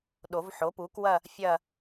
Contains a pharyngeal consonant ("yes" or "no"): yes